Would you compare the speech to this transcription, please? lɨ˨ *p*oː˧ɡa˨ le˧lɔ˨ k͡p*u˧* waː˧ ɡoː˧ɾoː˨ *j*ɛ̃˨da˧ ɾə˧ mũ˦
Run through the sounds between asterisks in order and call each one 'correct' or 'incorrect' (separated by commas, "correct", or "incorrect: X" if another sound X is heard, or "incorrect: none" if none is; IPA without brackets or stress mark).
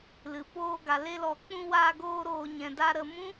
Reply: correct, incorrect: ũ˧, incorrect: ɲ